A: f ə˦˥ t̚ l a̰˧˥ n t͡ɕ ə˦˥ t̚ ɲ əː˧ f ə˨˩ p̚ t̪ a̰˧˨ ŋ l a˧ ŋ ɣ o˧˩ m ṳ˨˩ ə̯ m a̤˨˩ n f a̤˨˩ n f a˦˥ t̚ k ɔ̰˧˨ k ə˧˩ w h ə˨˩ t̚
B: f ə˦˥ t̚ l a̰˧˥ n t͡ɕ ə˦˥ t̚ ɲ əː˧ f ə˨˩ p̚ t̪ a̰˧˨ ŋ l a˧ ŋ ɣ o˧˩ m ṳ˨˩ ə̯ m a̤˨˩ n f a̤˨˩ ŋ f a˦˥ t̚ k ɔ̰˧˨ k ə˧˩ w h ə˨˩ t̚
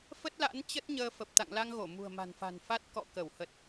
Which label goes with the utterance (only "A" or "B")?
A